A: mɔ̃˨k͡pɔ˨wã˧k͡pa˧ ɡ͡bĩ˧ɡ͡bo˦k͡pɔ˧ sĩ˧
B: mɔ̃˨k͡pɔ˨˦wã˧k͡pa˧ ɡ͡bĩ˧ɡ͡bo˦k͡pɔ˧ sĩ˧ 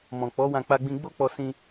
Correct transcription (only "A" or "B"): B